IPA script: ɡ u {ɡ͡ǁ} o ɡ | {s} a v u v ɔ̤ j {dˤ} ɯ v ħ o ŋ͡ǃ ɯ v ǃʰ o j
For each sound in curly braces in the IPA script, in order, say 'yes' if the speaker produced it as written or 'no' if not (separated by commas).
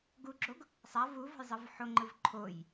yes, no, no